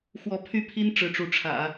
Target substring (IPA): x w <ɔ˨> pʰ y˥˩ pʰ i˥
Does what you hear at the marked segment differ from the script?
yes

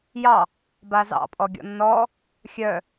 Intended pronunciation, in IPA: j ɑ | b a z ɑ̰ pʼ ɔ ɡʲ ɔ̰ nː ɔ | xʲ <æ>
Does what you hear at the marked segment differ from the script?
yes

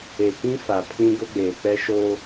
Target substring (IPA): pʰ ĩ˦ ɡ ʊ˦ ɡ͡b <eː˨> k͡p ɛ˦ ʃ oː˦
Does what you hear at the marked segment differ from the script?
no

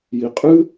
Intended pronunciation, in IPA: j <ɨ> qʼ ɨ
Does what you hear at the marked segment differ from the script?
yes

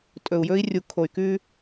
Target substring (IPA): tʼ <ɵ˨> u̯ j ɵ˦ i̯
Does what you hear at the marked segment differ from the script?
no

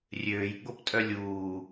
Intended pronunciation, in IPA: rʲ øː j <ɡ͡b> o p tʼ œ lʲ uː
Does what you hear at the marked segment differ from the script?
no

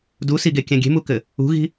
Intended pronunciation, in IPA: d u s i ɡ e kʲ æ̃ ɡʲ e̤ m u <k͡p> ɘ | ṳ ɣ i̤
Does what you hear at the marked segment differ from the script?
yes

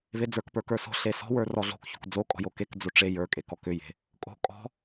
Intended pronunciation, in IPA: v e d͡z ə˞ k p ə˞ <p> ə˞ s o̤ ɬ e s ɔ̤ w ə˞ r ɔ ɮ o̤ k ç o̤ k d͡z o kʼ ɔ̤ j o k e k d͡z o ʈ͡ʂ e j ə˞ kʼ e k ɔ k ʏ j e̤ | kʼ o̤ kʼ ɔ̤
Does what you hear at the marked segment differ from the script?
yes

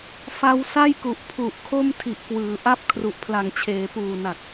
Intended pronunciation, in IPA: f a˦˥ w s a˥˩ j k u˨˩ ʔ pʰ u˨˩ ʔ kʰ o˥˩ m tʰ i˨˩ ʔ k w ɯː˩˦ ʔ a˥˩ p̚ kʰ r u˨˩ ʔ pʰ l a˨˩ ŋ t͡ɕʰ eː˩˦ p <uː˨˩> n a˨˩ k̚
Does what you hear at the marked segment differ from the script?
no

